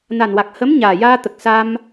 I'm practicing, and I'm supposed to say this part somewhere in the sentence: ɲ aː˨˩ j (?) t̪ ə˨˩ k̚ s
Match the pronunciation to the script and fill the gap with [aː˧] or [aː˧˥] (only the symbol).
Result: aː˧